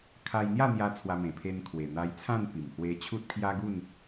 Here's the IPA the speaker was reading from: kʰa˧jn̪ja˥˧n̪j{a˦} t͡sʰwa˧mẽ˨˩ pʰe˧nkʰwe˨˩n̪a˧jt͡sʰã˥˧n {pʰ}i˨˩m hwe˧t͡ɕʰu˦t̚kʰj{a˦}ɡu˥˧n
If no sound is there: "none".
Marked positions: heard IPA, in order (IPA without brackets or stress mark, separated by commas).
a˧, p, a˦